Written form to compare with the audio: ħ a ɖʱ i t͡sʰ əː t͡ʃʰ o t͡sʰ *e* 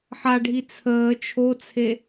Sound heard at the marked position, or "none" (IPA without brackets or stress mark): e